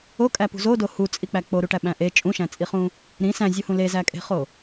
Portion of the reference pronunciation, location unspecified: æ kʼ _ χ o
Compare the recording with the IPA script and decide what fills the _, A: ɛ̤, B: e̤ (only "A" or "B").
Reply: B